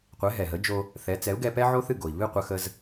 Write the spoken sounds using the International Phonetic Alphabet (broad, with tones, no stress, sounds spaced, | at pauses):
qʷ ɛ˩˥ ɦ ɛ˩ ɦ ə˩˥ d͡ʒ o˧ | θ ɛ˩˥ t͡s ɛ˩˥ u̯ ɡ ɛ˧ p ɛ˥ ʕ o˥ θ ɨ˥˩ ɡ o˩ i̯ β ɨ˥˩ qʷ ə˧ x ə˧ z